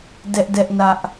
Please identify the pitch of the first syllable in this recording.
high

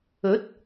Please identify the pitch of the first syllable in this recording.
rising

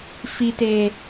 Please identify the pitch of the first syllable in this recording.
low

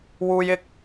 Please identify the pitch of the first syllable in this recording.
high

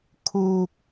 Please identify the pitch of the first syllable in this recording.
low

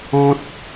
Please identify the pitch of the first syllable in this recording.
high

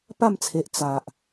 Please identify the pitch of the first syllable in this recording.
falling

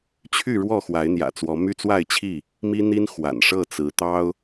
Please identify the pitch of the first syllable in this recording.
falling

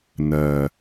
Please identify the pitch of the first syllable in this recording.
low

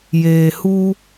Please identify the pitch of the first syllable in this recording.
low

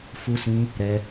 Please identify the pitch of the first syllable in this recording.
high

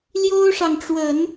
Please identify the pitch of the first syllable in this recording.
high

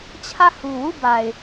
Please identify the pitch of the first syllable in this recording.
falling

